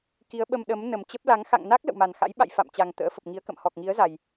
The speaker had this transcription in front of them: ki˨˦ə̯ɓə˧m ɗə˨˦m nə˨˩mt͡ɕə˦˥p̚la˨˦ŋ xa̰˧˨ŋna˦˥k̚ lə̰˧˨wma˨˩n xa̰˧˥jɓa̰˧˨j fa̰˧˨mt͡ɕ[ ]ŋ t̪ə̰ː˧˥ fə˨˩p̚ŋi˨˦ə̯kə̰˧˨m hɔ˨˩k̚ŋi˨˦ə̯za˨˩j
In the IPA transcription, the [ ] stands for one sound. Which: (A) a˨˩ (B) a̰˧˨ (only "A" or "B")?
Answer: A